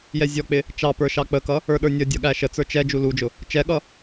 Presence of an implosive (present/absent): present